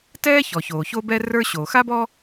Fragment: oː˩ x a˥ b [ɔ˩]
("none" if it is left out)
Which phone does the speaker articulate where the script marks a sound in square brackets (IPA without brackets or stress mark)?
ɔ˥